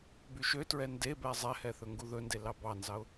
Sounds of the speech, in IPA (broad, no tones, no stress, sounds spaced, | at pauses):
b y ʃ ø t ɹ ɛ n d e b ɛ zˤ ɛ h ɛ θ ɵ ŋ ɡ u ð ɵ n d e l ɑ b ɑ n z ɑ ʊ̯